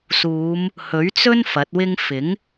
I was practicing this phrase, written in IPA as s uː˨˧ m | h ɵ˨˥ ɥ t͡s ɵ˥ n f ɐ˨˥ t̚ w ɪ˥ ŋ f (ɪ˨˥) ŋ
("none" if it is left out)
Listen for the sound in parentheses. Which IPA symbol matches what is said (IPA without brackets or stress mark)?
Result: ɪ˨˥